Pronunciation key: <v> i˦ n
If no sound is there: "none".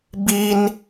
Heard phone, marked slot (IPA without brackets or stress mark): b